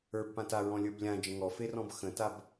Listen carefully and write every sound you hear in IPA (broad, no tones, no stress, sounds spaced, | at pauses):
ə˞ b p ã t a ɹ ɔ̃ lʲ ə˞ b lʲ ã d͡ʒ ə̃ ŋ ɔ f e r ɔ̃ b x ə̃ t a b